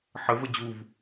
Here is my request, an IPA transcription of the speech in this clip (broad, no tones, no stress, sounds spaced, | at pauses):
ħ ə v ə d͡ʑ u v